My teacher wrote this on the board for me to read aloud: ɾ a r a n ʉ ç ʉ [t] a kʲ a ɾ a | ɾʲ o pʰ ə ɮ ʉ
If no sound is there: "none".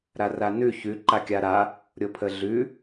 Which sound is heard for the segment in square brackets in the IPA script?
ǃ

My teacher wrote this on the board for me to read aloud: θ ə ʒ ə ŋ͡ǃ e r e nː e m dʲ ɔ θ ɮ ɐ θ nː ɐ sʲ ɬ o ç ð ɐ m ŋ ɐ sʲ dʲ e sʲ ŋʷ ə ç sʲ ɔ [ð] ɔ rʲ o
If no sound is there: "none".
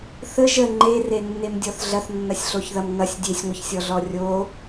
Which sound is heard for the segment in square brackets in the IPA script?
ɮ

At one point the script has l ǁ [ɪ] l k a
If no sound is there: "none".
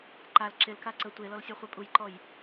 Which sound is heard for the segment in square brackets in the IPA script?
ɪ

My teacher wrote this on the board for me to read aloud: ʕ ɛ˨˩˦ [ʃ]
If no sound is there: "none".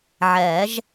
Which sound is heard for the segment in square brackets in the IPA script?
ʒ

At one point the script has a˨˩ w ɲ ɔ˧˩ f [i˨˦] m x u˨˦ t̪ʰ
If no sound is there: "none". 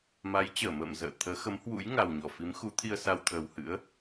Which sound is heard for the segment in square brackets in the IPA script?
i˨˦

